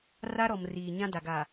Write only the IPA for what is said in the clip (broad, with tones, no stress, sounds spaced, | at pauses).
r a˦ ɾ ɔ˨ m r iː˨ ɲ ã˦ d a˨ ɡ a˨